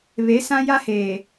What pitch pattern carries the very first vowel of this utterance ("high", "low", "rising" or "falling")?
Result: rising